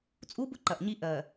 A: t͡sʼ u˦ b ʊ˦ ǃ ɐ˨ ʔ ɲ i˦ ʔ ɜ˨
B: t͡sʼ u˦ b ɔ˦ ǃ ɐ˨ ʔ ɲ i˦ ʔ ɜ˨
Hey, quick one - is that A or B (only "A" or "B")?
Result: A